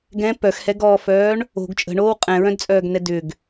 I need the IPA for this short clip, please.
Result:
ɡ ɛ̃ p œ x h ɛ ɡ ɔː f œː ɳ | o̤ ɡ t͡ʃʼ ə̤ ɳ oː w qʼ ɛ̃ ɹ œ̃ d t͡sʼ œː ɡ n ɛ d ʏ ɡ

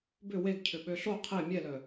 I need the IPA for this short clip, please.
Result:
b ʏ w e ɡ cʰ ʏ ɓ ø ɬ o qʰ e mʲ ɛ l œ

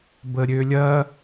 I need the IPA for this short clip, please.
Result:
b ə ɾʲ ø lʲ ɐ

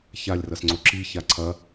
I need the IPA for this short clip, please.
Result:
ç a lʲ r ɐ s ŋ͡ǀ o ǁ i ç a ǀʰ ɐ

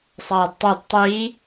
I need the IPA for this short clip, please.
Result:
sˤ aː d tˤ ɛ d tˤ iː

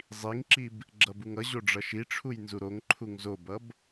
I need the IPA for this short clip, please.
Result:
zˤ i ŋ ǁ i b | ɡ͡ǁ ʌ b u ŋ ʌ ʑ o ɖ͡ʐ ʌ ʃ i ʈ͡ʂʰ u j n z u ɾ o ŋ ǃʰ u ŋ z o b ʌ b

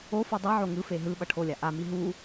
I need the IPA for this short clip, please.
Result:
o f ɯ dˤ i ʕ o ŋ ɯ f e ɦ ɯ ɓ ʌ ʈʰ o lʲ a ʔ a m i ɦ u

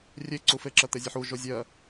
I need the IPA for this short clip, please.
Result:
rʲ e ǀ u f e ǁ ɜ t̪ e zʲ ɨ ħ u ʒ o zʲ ɜ

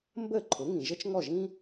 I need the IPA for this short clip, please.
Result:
m b ə˥˩ ǃʰ ʊ˩˥ ŋ ĩ˩ ʒ ə˥ t͡ʃ ŋ ɔ˥˩ ʒ ĩ˥

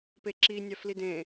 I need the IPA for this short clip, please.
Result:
p e ǁ i nʲ ɑ f l i d ẽ

